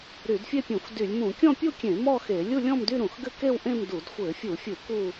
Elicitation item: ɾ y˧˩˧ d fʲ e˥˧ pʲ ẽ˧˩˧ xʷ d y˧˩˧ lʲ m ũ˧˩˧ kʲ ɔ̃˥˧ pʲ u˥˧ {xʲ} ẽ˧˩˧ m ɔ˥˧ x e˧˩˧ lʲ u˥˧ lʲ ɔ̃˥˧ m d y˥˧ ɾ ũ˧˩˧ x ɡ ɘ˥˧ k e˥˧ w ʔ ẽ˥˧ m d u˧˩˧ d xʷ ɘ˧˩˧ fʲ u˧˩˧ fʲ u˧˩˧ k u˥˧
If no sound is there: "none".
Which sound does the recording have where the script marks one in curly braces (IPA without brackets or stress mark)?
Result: kʲ